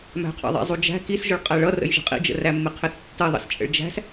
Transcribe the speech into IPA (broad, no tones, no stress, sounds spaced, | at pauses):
m æ̤ qʰ ɑ̰ ðˤ ḭ zˤ u d͡ʒ æ̤ k i s ʒ ʊ ɭ qʼ æ ɭ ʌ r ə̰ j ʒ ə̤ qʼ ḭ d͡ʒ ə̰ r æ mː ɪ qʰ ɪ θ tː ə ðˤ ə̰ s t͡ʃʼ ə̰ ɭ d͡ʒ æ̤ s